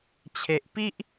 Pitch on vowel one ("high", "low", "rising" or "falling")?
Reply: low